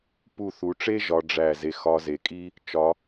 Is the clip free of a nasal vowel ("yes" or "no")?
yes